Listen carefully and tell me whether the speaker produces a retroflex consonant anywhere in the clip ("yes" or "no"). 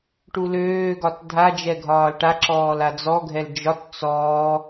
yes